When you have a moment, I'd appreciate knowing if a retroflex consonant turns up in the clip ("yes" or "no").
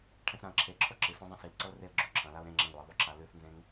yes